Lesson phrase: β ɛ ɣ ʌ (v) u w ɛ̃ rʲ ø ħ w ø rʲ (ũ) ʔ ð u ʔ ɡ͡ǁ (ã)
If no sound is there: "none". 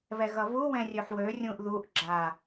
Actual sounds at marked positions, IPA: β, ũ, a

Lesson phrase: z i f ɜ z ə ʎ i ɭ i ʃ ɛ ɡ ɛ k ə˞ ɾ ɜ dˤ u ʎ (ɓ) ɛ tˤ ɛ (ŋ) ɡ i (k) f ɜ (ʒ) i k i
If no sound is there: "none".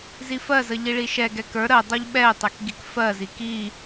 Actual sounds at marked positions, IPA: ɓ, k, k, z

